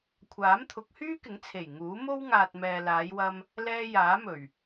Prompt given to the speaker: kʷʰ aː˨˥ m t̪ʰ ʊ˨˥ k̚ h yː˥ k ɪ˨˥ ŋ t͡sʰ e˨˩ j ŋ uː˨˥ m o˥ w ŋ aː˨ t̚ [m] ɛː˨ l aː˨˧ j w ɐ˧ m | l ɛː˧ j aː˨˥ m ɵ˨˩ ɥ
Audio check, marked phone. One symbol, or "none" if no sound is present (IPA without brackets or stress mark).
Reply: m